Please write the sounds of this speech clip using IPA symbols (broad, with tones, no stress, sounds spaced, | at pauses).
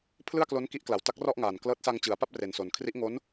pʰ l ɯ˥˩ a̯ k l o˦˥ n k i˦˥ ʔ k l a˨˩ w t a˦˥ k̚ r ɔ˥˩ ʔ ŋ aː˨˩ n k l ɤː˦˥ t̚ s a˧ ŋ t͡ɕ ɯ˩˦ a̯ p a˥˩ p̚ r e˨˩ n s o˨˩ n kʰ r i˦˥ ʔ ŋ o˦˥ n